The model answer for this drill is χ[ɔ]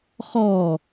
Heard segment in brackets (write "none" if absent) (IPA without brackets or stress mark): ɔ